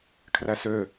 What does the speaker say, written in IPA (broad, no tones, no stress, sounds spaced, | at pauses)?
kʰ r æ s ø